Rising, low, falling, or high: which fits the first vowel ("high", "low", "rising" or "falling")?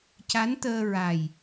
rising